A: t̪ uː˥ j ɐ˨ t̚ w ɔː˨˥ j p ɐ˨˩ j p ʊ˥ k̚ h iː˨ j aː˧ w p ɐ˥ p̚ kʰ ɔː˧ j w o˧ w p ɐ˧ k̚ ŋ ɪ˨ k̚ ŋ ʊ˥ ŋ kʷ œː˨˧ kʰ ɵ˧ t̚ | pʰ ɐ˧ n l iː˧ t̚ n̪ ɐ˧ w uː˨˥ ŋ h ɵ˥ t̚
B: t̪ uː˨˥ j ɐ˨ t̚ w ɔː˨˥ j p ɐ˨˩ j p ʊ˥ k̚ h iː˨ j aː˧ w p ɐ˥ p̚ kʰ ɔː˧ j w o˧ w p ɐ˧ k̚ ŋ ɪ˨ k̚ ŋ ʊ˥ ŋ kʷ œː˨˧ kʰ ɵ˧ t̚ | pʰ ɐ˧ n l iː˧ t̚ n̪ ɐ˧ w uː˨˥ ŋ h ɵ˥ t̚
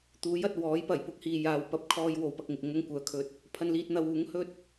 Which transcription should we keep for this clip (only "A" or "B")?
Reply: B